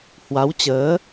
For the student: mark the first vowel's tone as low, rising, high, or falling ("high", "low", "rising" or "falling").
rising